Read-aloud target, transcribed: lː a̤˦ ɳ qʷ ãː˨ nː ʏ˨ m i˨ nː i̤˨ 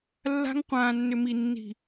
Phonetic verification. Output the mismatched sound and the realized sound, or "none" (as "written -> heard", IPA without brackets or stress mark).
ɳ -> ŋ